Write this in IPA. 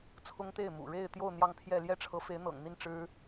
t͡sʰ ʊ˥ ŋ t̪ e˥˩ ɪ̯ m ṵ˨˩ ɻ e˥˧ ɪ̯ t̪ j o˥˧ ʊ̯ n̪ j ɑ˥˧ ŋ pʰ j ɛ˥˧ l j ɛ˥˩ ʈ͡ʂʰ ɤ˧˥ f e˧˥ ɪ̯ n̪ ɤ̰˨˩ ŋ n̪ i˥˩ n ʈ͡ʂ ɻ̩˥

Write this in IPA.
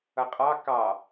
ʌ qʼ ɑ k ɑ

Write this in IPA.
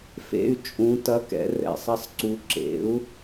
f ḛ˧˥˧ y̯ t͡ʃʼ ũ˧˥ t ɐ˧˥˧ k ɛ̰˩˥ r ɛ̰˩˧ sˤ ɐ˥˧ sˤ ǀ u˧˥ ǁ ḛ˩˥ u̯

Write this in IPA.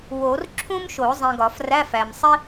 w o˨˩˦ r ǁʰ ũ˥ m ʃ o˨˩˦ zˤ ĩ˨ ɡ ɒ˨˩˦ f r æ˧˥˧ f æ˨ m sˤ i˥

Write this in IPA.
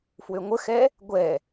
f w ø ŋʷ ə x ɛ | ɡʷ ɛ

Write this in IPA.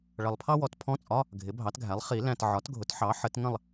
ɭ ʌ˨ lˠ pʰ ɑ˥ w ɔ˩˥ t pʰ ɔ̃˧˥˧ t͡sʼ ɒ˧˥˧ | ɡʱ ɪ˩˥ bʱ ɑ˩˥ t ɡʱ æ˩˥ lˠ χ i˨˩˦ l æ̃˨ t ʕ ɒ˩˥ t ɡʱ ʊ˩˥ t ħ ɑ˩˥ ħ ə˩˥ t ŋ ə̃˥˨ lˠ

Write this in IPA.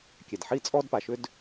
kʲ ɛ˩ d ħ i˥ t͡sʼ ɔ˥ d p a˩ ʃ ʏ˥ d

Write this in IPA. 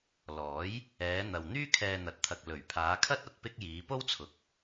l ɔː˨˥ j | ɛː˨˧ n̪ ɐ˨ w n̪ yː˥ kʰ ɛː˧ n̪ ɐ˨˥ t̚ t̪ʰ ɐ˨ k̚ l ɵ˨˩ ɥ pʰ aː˨˧ kʰ ɐ˥ t̚ ɐ˧ t̚ p ɪ˥ k̚ j iː˨˧ p o˥ w t͡sʰ ʊ˨ k̚

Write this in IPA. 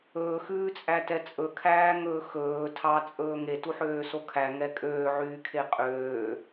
ɵː x ʉː t͡sʼ æ t ɛ t͡sʼ ɵ kʰ æː ŋ ɵː x ɵː tʰ ɑ t͡sʼ ɵː ŋ e t u ħ øː s o kʰ æ ŋ ɛ kʼ øː ʕ yː kʰ e qʼ øː

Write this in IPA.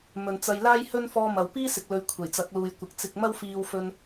m ɵ˨ n t͡s ɐ˧ j l aː˥ j h ɵ˥ n f ɔː˧ m ɐ˨ w p iː˥ s ɪ˧ k̚ l ɵ˧ ɥ kʷʰ e˨˩ j t͡s ɐ˨˥ k̚ l uː˨ j kʷ ɪ˨ k̚ t͡s ɪ˧ k̚ m ɐ˥ w f iː˧ w f ɵ˧ n

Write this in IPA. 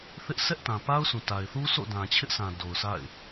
θ ɪ˦ ʔ sʰ ɛ˦ ʔ t ã˨ p a˦ ʊ̯ sʰ ũ˨ t a˨ ɪ̯ θ u˦ sʰ o̰˦˨ d ã˨ t͡ɕʰ ɪ˦ ʔ s ã˨ d o˨ ʊ̯ s a̰˦˨ ɪ̯

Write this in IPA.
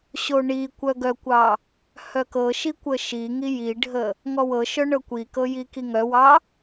ɕ o ɳ i kʷ œ ɡ œ kʷ ɑ | h œ k ɤ ʃ i kʷ ə ʃ i ŋ i j i ɖʱ ə | ŋ ɔ w ɤ ʃ œ ɳ ɤ kʷ i k ɤ j i k i ŋ œ w ɑ

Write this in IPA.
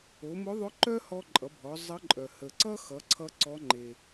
o˩˧ m ʊ˧˥ ðˤ ʊ˧˥ ǃ œ˥ h ɔ˧ ǃʼ ʌ˩˧ bʱ ɔ˩˧ zˤ ə˧˥ ǃʼ œ˩ h ə˩ ǀ ʌ˥ x ʌ˩˧ ǀʰ ʌ˧ ǀ ɔ˧˥ ŋ͡ǃ e˩

